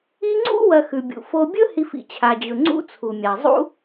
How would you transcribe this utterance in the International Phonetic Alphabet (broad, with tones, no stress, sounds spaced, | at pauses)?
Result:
i˦ ŋ͡ǀ ṵ˥ w ɐ˨ x ʉ˩ bʲ ṵ˩ f o˨ bʲ ɵ˦ h i˨ f ḭ˩ t͡ɕʰ a˩ d͡ʑ ɵ˩ ŋ͡ǀ ṵ˦ t͡sʰ u˩ mʲ a˩ zˤ ṵ˦